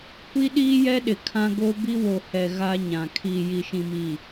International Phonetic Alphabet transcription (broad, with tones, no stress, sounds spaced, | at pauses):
kʷ i˦ ɗ iː˦ j ɛ˦ ɗ ɪ˨ kʰ ã˦ ɡ o˦ b i˦ w o˨ h ɛ˨ ɣ a˦ ɲ ã˨ kʰ iː˨ j i˨ ʃ ĩ˨ m i˨